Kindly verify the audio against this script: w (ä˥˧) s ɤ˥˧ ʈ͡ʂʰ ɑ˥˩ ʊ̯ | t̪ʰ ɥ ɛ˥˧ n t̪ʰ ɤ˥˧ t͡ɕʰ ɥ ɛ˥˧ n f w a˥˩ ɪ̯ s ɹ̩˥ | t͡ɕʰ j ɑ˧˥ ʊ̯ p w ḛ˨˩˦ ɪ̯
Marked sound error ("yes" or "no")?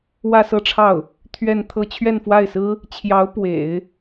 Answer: no